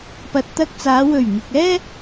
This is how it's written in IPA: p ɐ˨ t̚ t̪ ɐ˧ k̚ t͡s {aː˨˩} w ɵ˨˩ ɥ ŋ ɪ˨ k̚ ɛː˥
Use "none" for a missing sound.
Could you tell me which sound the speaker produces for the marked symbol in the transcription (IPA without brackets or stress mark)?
aː˨˧